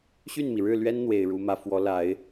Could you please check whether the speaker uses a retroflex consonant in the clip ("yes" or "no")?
yes